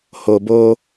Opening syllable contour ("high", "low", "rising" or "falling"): low